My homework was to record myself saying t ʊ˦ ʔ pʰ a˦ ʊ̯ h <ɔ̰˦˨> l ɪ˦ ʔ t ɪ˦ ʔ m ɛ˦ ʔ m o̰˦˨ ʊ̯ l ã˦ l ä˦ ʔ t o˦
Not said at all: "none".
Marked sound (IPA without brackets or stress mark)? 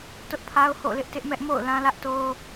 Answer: o̰˦˨